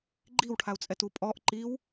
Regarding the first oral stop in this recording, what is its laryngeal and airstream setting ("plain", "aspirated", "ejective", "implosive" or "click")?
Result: click